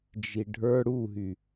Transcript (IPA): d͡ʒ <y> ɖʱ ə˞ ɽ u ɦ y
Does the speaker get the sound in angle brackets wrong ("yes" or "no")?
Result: yes